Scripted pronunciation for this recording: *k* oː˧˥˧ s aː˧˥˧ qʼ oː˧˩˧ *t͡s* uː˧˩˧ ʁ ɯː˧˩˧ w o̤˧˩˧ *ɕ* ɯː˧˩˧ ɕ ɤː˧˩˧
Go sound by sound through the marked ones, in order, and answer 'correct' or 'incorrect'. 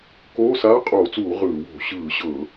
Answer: correct, correct, correct

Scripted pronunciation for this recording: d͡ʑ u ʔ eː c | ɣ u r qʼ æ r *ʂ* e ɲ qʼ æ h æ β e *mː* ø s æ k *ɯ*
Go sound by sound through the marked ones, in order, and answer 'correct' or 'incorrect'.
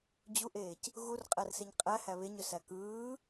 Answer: incorrect, incorrect, incorrect

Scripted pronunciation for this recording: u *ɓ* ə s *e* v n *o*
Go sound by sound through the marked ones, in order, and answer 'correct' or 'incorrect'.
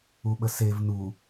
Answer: correct, correct, incorrect

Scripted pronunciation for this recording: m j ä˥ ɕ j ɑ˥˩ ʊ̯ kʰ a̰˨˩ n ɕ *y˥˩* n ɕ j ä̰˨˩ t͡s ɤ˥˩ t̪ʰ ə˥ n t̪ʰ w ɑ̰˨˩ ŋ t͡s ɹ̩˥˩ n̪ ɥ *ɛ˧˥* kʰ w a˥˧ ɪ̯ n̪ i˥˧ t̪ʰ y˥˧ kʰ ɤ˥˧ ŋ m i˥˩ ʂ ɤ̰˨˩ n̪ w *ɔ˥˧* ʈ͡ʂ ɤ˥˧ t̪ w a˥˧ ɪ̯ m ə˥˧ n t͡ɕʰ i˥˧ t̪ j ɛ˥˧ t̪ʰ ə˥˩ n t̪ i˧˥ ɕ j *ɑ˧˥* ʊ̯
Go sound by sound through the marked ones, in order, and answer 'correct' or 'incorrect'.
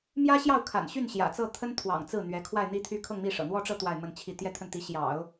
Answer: correct, correct, correct, incorrect

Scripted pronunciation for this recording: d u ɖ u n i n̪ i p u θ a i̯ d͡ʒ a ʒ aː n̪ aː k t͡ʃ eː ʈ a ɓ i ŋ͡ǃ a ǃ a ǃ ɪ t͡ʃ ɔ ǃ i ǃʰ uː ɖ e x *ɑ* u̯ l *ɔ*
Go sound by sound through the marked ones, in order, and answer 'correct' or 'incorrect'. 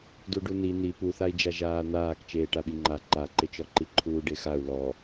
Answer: incorrect, correct

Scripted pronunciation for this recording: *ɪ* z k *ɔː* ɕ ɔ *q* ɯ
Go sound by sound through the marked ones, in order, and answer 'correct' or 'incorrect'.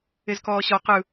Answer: correct, correct, correct

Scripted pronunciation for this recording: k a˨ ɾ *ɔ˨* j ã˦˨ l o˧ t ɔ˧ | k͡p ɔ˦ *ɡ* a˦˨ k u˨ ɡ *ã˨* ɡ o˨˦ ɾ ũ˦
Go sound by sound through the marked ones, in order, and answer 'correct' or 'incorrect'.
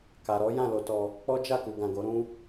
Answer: incorrect, incorrect, correct

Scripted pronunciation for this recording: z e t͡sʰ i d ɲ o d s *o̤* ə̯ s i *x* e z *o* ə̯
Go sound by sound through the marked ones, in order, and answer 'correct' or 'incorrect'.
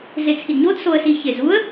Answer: incorrect, incorrect, incorrect

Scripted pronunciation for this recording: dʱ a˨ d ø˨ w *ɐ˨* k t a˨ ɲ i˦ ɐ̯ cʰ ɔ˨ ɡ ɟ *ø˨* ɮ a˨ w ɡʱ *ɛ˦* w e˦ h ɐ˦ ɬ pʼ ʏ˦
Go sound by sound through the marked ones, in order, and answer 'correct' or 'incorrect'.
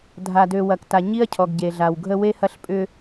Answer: correct, incorrect, incorrect

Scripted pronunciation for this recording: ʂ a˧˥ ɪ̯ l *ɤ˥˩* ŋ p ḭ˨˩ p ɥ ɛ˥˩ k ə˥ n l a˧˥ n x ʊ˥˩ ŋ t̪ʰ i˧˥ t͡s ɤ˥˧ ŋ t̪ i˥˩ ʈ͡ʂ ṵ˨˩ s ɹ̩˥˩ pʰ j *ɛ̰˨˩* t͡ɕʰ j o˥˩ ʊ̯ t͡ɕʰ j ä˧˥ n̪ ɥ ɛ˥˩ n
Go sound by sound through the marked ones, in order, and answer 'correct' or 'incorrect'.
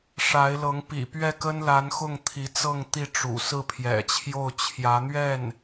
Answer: incorrect, correct

